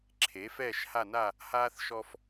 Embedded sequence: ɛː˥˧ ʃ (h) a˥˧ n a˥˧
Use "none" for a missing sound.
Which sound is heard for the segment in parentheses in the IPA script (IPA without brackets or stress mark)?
h